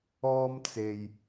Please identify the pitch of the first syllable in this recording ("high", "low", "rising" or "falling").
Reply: high